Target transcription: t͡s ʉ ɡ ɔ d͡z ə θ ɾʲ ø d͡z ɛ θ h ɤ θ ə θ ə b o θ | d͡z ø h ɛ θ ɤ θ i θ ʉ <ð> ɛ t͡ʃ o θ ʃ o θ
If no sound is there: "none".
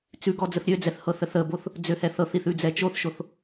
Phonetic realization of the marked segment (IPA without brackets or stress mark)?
d͡z